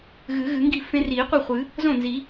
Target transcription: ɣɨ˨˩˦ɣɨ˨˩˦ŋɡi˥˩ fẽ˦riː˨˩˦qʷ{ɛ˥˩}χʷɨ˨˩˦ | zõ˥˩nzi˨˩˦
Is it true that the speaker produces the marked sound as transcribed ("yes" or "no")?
yes